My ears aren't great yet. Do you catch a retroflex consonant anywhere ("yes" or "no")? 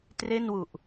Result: no